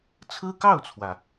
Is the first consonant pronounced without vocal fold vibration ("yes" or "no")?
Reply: yes